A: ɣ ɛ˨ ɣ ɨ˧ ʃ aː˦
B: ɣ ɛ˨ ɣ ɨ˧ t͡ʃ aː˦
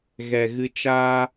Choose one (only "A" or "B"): B